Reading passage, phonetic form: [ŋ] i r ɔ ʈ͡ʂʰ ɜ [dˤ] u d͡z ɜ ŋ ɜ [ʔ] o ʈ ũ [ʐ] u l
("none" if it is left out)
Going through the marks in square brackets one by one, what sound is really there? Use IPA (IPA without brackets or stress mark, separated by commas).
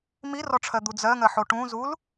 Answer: m, d̪, ħ, z